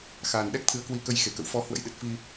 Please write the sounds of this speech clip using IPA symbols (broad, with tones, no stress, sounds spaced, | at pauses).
x aː˨˩ n ɗ ɛ˦˥ k̚ t̪ʰ ɨ˨˦ ə̯ k w i˧ k ə˧ j x e˧˩ k ə̰˧˨ w f ɔ˧ h w ə̰˧˥ j ɗ ɨ˨˩ t̚ f i˧